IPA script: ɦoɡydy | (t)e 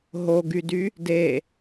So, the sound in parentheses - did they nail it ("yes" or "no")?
no